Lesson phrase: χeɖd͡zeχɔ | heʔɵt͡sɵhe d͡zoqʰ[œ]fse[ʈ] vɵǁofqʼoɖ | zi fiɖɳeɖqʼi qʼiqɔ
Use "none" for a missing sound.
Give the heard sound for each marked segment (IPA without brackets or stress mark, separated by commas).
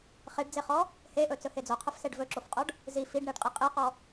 ɵ, ɖ